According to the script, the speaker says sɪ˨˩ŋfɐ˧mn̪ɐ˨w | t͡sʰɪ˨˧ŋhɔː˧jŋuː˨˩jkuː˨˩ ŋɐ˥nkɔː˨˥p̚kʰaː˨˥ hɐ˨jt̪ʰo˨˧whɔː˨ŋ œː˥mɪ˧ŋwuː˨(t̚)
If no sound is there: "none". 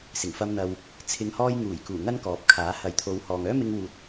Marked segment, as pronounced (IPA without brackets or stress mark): t̚